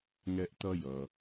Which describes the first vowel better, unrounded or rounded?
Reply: unrounded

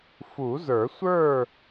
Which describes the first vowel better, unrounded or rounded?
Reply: rounded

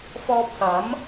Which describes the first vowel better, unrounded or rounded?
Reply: rounded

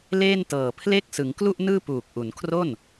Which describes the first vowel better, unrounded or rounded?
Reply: unrounded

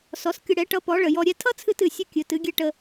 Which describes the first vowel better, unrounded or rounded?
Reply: rounded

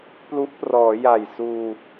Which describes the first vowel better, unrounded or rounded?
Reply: rounded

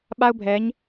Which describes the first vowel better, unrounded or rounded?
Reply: unrounded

